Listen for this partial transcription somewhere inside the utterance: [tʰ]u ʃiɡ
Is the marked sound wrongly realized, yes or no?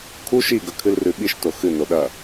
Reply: yes